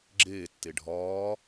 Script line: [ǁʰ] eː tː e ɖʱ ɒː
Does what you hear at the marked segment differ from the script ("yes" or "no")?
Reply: yes